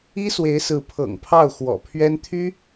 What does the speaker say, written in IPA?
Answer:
i˥ s w e˧˥ ɪ̯ s ɹ̩˧˥ pʰ ɤ̰˨˩ ŋ pʰ ɑ˥˩ ʊ̯ x w ɔ̰˨˩ pʰ ɥ ɛ˥ n t̪ʰ y˥

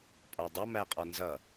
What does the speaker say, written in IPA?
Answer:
pʼ ɒ dˤ ʌ m æ qʼ ɒ n z ʌ

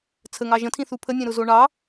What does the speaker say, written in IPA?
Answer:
t͡sʰ ə ŋ ɑ ʒ ə̃ tʰ ĩ θ u pʰ ə nʲ ẽ ɾ ʊ z o ɳ ɑ

